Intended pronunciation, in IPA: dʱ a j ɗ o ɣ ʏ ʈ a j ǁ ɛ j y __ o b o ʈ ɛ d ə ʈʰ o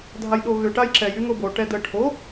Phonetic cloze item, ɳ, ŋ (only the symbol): ŋ